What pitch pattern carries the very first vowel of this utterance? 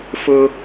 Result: high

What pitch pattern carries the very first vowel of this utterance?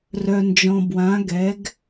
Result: low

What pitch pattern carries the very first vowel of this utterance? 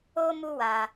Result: high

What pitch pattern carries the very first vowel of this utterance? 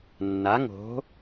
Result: rising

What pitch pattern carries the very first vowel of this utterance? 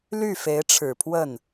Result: falling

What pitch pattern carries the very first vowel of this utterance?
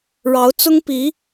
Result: rising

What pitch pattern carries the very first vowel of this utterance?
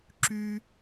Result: high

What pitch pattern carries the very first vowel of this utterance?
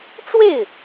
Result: falling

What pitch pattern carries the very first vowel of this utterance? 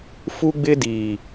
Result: high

